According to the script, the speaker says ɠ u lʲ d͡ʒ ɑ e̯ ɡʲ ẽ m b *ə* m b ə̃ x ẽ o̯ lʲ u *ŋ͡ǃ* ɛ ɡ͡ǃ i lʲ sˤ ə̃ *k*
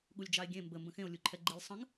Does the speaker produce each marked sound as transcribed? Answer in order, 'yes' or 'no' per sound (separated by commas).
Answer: yes, no, no